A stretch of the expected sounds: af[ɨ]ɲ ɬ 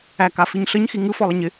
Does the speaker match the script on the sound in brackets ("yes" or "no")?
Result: no